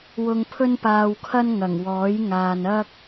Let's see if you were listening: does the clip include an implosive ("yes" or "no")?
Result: no